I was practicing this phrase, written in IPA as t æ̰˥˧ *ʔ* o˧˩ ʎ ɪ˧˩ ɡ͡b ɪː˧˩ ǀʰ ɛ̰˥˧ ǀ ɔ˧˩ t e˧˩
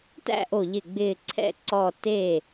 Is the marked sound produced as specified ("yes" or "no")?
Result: yes